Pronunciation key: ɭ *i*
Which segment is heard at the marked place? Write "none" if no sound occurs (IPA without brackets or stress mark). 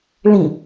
ĩ